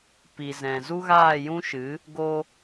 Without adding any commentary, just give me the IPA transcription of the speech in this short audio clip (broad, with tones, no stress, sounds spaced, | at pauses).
p i˨ z ɛ̃˨ z u˦ ɣ aː˦˨ j ũ˦ ʃ ɨ˨˦ | ɡ o˧